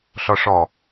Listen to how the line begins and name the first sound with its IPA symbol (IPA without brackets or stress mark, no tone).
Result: ɬ